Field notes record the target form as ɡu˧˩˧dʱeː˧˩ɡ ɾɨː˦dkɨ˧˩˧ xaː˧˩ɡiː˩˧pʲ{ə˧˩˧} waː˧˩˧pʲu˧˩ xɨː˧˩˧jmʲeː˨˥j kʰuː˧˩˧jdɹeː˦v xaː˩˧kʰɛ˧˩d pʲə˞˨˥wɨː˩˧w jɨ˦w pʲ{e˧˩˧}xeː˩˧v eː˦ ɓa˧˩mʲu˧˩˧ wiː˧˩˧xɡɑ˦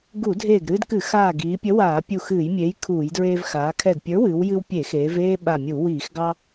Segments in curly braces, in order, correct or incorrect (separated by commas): incorrect, correct